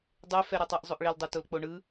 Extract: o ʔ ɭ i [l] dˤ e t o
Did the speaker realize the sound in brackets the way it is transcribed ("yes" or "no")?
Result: yes